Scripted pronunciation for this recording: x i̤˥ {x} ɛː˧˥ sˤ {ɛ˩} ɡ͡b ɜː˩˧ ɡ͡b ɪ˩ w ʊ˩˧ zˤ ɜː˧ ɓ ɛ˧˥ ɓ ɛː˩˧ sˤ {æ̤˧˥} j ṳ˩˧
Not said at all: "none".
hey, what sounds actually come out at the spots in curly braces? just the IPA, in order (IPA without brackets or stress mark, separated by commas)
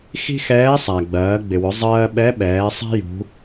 x, æ˩, æ̤˥